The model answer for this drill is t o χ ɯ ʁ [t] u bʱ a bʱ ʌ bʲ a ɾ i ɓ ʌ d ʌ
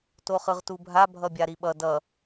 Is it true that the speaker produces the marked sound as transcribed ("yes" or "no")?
yes